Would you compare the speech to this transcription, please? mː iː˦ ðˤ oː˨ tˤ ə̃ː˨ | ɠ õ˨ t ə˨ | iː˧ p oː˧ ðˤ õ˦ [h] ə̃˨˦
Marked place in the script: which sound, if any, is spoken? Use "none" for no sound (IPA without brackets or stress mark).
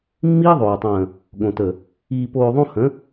h